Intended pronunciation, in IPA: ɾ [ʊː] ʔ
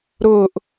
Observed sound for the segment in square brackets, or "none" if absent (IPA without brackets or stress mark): ʊː